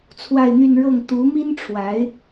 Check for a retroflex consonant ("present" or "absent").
present